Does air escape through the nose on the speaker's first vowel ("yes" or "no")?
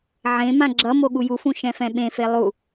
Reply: yes